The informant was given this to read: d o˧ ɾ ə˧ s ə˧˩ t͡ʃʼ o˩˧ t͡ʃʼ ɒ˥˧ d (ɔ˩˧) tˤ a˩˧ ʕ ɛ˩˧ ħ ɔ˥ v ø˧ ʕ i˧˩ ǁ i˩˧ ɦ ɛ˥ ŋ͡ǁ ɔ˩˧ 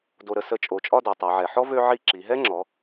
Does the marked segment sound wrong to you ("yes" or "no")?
no